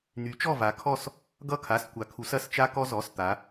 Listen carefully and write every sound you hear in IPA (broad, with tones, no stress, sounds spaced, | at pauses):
n̪ y˩˧ t͡ʃ ɔ˧˩ v a˩˧ kʰ ɔ˧˩ s | ɡ ʌ˧˩ kʰ a˩˧˩ s kʷ a˩˧ kʰ u˩˧ s ɐ˧˩ s t͡ʃ a˧ k ɔ˧ z ɔ˩˧˩ s t̪ a˩˧